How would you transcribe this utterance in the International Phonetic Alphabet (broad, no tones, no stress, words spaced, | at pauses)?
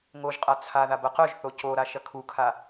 ŋoʒqʼa t͡sʰaðabɐ qœʒθo coɾaʃɐ kʰukʰa